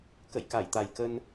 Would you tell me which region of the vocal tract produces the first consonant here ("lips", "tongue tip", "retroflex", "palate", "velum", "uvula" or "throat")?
velum